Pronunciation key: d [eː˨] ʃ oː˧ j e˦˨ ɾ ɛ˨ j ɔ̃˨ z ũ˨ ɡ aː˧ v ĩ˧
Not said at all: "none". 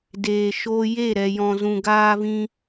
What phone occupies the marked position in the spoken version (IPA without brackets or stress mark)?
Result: eː˨